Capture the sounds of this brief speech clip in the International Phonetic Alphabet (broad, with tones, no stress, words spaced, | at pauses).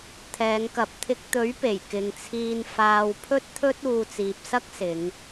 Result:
t̪ʰɛː˨˧ŋkɐ˨˥p̚t̪ʰɪ˧k̚ t̪ɵ˨˥ɥpe˨˩j kɪ˨ŋt͡sʰiː˧n faː˧wpʰɵ˥t̚t̪ʰɵ˥t̚ uː˧t͡siː˨p̚sɐ˥k̚sɪ˨˧ŋ